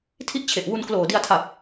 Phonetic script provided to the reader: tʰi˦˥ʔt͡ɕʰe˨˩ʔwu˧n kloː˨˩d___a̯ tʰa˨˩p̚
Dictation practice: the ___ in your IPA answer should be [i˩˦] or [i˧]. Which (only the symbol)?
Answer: i˧